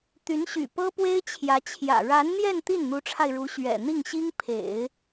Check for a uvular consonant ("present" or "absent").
absent